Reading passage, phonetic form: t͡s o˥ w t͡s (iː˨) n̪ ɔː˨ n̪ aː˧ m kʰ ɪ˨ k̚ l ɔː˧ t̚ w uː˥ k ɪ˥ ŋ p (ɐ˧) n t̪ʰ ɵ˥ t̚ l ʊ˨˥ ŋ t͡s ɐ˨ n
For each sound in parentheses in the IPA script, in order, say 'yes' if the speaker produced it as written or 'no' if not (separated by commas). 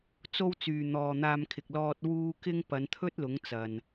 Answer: no, no